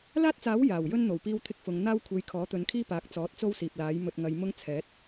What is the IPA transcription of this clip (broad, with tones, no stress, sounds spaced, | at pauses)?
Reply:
l aː˥ t̚ t͡s aː˨˥ w j aː˨˩ w j ɵ˥ n n̪ o˨˩ w p iː˥ w t̪ʰ ɪ˥ k̚ f ʊ˨˧ ŋ n̪ aː˥ w kʷʰ e˨˥ j kʰ ɔː˨˥ t̪ ɵ˨˧ n kʰ iː˥ p aː˨˥ k̚ t͡s ɔː˨˥ t̚ t͡s o˥ w s iː˨ p̚ l aː˨˥ j m ɵ˧ t̚ ŋ ɐ˨˧ j m ʊ˥ ŋ t͡sʰ ɛː˨˥ t̚